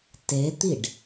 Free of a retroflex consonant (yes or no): no